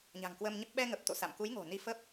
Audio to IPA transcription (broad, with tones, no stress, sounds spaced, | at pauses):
ɲ a̤˨˩ ŋ k w əː˧ m ɲ ə˦˥ p̚ ɓ ɛ˧ ŋ ə˨˩ p̚ t̪ o̰˧˨ s a̰˧˨ m k u˨˦ j ŋ o̤˨˩ n i˧ f ə˦˥ p̚